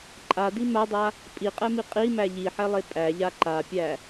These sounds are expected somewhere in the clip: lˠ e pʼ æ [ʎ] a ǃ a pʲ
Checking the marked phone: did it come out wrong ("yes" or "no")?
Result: no